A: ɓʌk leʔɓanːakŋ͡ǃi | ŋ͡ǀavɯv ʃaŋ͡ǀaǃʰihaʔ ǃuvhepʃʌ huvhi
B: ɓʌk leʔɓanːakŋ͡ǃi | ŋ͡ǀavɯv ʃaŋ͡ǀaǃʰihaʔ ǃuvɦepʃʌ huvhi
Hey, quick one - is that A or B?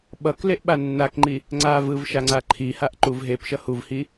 B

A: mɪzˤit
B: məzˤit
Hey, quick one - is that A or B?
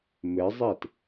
A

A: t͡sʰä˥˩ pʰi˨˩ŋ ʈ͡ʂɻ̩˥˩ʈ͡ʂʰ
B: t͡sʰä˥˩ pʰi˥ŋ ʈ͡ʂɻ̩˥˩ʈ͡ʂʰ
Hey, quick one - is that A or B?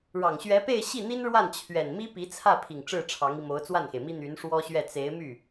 A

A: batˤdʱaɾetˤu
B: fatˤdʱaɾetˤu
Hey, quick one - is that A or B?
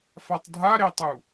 B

